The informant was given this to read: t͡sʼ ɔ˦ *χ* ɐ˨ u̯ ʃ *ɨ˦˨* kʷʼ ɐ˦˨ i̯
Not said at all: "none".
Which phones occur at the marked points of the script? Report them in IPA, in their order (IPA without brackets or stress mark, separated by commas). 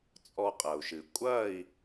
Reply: qʼ, ɨ˨